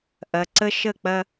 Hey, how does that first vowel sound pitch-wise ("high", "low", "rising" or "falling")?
low